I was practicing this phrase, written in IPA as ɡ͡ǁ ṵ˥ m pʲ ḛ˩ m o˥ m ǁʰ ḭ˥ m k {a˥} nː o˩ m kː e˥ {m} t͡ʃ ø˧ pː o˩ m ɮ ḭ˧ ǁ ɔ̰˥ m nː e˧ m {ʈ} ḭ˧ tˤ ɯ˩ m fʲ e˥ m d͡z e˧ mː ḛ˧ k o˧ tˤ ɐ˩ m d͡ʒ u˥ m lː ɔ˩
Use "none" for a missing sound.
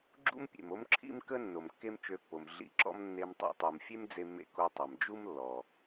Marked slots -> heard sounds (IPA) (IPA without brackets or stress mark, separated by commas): ə˥, m, tˤ